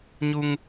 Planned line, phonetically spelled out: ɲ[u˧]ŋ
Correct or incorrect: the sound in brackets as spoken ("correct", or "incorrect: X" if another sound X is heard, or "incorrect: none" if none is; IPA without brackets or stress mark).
correct